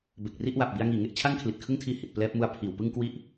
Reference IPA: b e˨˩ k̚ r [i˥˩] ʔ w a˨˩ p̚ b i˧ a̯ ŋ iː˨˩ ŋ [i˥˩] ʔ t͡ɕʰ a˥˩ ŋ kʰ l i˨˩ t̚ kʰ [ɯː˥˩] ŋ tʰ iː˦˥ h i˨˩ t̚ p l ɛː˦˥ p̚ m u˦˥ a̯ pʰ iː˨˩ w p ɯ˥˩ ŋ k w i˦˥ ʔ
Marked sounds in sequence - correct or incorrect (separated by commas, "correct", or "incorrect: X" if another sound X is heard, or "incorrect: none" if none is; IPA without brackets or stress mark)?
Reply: correct, incorrect: e˥˩, incorrect: ɯ˥˩